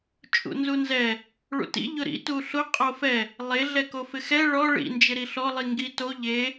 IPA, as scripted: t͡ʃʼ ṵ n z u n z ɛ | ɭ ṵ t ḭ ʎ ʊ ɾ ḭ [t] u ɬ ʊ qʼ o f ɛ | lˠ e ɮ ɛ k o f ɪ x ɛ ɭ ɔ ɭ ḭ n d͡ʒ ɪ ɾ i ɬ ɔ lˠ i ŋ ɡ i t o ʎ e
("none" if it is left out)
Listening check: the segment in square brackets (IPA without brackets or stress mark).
t